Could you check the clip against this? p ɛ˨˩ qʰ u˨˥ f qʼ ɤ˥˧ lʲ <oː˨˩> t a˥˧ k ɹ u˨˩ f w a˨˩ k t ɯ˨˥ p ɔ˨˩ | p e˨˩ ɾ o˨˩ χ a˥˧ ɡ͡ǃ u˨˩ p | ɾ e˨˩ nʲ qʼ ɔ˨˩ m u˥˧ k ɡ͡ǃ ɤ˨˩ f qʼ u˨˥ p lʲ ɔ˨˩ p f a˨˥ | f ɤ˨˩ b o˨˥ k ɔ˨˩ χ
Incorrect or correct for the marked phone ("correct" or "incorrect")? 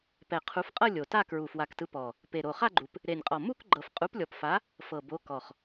incorrect